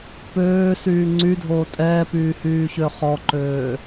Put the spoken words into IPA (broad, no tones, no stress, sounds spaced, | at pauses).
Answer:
p øː s yː ŋ͡ǀ y dʱ oː tʼ ɛː p yː h yː ç ø χ ɔ ǃ øː